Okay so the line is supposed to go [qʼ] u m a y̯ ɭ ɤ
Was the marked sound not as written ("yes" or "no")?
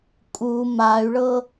yes